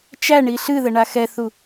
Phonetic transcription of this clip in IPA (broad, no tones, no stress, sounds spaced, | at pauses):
t͡ʃ æ ɳ i ɬ ɨ ð ə ɳ a x ɛ θ u